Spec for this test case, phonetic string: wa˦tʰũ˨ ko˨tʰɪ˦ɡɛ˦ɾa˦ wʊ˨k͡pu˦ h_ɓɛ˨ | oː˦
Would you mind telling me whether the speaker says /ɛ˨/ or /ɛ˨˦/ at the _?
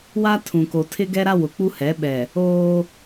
ɛ˨˦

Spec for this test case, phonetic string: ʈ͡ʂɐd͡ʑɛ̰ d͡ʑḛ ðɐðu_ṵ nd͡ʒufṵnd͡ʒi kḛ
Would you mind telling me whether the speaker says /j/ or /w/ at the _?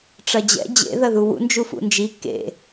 w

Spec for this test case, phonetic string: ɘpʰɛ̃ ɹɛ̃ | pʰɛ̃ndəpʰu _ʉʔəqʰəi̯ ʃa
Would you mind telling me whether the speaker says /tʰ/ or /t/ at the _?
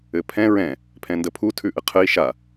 tʰ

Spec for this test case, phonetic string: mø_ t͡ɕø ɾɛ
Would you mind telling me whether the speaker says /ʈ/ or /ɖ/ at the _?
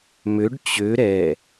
ɖ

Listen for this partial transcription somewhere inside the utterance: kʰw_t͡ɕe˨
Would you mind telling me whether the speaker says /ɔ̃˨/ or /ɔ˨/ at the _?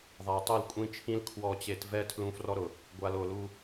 ɔ˨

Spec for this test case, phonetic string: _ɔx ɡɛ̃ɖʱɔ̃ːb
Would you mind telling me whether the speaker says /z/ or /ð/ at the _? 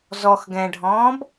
z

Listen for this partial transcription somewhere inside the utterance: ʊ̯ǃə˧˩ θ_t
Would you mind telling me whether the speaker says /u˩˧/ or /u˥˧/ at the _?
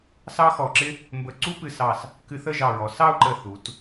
u˩˧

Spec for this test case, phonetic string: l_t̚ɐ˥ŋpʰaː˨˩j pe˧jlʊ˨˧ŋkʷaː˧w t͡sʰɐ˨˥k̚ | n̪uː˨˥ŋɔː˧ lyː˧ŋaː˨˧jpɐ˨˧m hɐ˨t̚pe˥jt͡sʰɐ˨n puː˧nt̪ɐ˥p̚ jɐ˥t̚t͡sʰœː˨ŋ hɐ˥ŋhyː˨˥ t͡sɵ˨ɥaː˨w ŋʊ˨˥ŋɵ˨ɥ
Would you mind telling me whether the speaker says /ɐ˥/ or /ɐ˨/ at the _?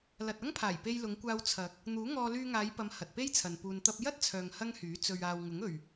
ɐ˨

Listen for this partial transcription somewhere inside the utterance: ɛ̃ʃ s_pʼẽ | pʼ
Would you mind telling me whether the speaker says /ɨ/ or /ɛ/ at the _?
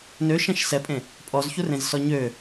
ɛ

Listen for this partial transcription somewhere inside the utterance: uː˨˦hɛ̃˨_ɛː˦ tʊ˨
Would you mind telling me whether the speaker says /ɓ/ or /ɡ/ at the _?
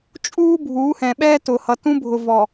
ɓ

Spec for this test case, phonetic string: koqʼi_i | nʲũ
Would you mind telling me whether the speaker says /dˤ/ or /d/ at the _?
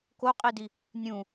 d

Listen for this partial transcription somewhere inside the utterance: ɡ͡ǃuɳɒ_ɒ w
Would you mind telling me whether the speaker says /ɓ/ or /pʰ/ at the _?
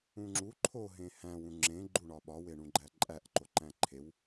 ɓ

